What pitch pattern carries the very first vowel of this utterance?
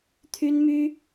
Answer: high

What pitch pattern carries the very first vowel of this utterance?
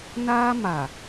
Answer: high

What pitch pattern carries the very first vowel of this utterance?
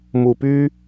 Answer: low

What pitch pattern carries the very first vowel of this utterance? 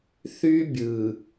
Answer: high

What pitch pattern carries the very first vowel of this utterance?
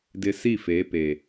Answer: low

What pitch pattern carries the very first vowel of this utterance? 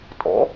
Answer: rising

